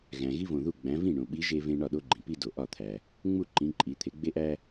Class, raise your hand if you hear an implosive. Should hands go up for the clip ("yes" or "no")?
yes